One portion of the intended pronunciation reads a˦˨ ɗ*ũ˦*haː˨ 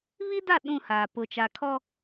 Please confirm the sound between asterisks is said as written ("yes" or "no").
no